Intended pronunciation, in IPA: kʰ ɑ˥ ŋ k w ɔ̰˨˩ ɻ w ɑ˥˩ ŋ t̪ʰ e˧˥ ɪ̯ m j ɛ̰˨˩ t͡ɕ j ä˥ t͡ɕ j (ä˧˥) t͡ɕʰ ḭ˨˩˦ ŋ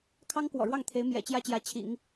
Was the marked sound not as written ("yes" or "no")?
no